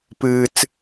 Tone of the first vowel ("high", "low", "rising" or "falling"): low